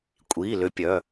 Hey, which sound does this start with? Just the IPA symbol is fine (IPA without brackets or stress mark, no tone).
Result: kʷʼ